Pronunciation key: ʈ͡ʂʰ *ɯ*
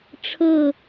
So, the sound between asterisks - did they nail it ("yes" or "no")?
no